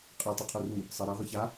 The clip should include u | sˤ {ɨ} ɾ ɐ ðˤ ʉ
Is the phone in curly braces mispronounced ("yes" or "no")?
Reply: yes